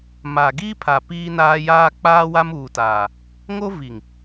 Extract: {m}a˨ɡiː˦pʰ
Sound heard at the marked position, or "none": m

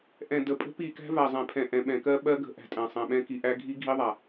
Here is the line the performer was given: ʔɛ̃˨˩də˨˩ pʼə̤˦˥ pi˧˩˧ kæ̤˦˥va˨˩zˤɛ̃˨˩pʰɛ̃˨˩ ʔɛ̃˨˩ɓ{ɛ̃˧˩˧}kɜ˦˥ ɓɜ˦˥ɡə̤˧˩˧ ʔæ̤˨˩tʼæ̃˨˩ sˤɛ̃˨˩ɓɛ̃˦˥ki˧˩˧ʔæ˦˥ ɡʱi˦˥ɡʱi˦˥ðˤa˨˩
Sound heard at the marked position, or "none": ɛ̃˧˩˧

